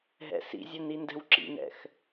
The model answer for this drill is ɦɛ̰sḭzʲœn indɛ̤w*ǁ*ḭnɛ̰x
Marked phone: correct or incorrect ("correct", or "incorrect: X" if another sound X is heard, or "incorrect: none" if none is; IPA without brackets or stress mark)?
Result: correct